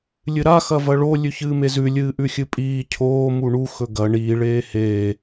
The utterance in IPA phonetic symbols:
lʲɨɾa xɐvɐɭo lʲʉçɨːmezʉ lʲɨːʔʉxʲɨpʼiː cʰoː muɳu xɵɡɐ ɳiː ɭeːheː

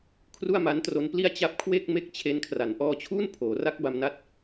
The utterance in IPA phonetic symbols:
kʰru˥˩a̯ma˦˥ntro˦˥npli˥˩a̯ t͡ɕa˦˥p̚kʰwe˥˩k̚me˥˩k̚ t͡ɕʰe˦˥nkʰra˩˦n ʔɔː˧t͡ɕʰuː˥˩n pʰoː˩˦ra˦˥k̚ ba˧mna˦˥t̚

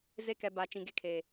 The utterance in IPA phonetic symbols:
ze˦kɛ˨ba˨ t͡ʃĩ˨ɡe˦kʰe˨

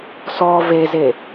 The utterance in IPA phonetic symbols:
sɔ veze

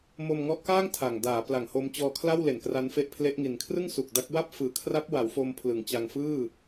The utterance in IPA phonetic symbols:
mo˧mŋɔ˦˥ʔkaː˥˩ŋ tʰa˨˩ŋ daː˩˦pla˨˩ŋho˧mt͡ɕɔː˧ kʰla˥˩wle˨˩nkra˦˥nfe˦˥ʔ pʰle˦˥ʔŋi˨˩n kʰrɯ˥˩ŋsu˨˩k̚ da˦˥k̚ wa˥˩p̚fɯː˨˩kʰra˦˥p̚ wa˩˦wfo˧m pʰlɯ˩˦ŋt͡ɕa˧ŋ fɯː˥˩

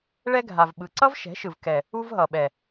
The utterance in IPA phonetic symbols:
ɭɛ˦ɡʱa˨vɓɯ˨ ǀʌ˦vʃɛ̤˨˦ʃɯ˨v kɛ˨ | u˦vɦʌ˨ɓɛ˨

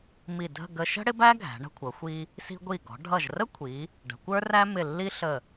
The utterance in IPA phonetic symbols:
mi˧˩dʱə̤˥˧ ɡə˧ʃə̤˥ ɽɪ˥bæ˥ ɡʱæ̤˩˧ ɳə̤˧kʷʰʌ˩˧xʷi˧ | si̤˧ɡʷi˧˩ɡɔ̤˩˧ ɖʱʌ˧˩ʒrə˥kʷʰi˩˧ | ɖə̤˩˧kʷə˞˥ræ˥ mɪ˧˩ lːi˥ɬə˧˩

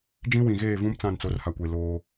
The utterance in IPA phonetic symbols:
d͡ʒĩ˦wĩ˨ɣeː˦˨vũ˦m t͡sã˦˨nt͡so˨˦rha˨kʷe˨ loː˦

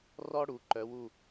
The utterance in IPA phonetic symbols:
rɔ˥ɽu˩˥ ǃœ˧˥wu˥˧

